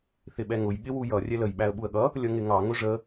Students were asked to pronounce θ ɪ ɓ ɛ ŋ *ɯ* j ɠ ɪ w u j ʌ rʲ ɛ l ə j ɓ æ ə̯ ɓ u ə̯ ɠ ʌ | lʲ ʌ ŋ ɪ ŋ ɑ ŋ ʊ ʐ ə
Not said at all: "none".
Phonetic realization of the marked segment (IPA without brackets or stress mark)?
ʊ